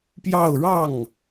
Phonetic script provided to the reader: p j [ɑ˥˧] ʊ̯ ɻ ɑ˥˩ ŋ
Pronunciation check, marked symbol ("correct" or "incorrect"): correct